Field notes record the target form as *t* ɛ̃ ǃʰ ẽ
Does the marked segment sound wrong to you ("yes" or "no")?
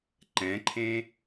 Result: yes